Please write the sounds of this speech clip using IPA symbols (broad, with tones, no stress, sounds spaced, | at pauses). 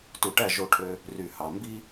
t u˨ ʈ æ˦˨ ʒ o˦ ʈʰ ø˦ | r y˨ h ɑ˨ m b i˦